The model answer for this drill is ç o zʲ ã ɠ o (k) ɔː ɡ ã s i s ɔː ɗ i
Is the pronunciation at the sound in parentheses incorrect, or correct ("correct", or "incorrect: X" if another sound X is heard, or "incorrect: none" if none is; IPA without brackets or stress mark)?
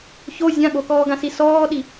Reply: correct